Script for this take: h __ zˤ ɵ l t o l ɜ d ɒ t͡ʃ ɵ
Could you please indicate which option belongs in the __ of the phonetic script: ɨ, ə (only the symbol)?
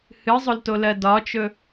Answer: ɨ